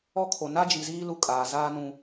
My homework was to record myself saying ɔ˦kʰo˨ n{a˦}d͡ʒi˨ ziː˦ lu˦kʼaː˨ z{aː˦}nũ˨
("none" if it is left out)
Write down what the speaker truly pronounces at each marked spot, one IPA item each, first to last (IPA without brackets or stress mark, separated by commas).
a˦, aː˦